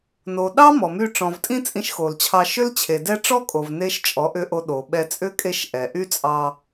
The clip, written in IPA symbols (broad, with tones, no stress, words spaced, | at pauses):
no˨ ɗɑ˦ mɔ˨my˧ ʈ͡ʂɔ̃˨vtʼĩ˦ t͡sʼĩ˧ʃxo˨lt͡ɕʰɑ˧ ʃʏ˦lt͡ɕʰe˨dɛ˦ ʈ͡ʂɔ˦kʼo˨v ne˦ʃ t͡ʃʼɔ˨˦ʔʏ˧ʔo˧ ɗo˨ɓɛ˧ t͡sʼʏ˦kʼe˧ʃ ʔɛ˨ ʔy˦t͡sʼɑ˧